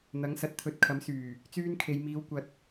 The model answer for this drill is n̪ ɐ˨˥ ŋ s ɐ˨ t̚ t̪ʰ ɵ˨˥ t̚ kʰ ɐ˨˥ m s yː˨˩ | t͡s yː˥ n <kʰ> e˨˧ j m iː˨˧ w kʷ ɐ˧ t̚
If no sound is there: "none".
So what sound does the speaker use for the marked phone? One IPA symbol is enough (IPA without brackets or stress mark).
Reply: kʰ